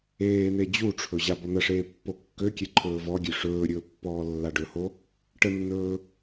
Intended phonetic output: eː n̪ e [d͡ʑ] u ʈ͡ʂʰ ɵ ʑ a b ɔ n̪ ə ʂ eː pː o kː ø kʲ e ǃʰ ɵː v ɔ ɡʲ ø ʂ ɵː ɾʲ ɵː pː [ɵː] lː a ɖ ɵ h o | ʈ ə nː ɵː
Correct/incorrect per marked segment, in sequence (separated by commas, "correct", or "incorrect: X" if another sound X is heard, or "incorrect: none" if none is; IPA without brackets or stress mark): correct, incorrect: ɔː